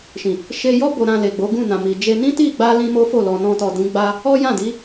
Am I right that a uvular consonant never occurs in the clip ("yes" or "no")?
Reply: yes